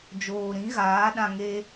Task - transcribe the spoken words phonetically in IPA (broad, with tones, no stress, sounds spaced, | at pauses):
d͡ʒ oː˨ ɾ ĩ˨˦ ɣ aː˨˦ ɗ ã˧ ŋ e˦